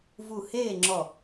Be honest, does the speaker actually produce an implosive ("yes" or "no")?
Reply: no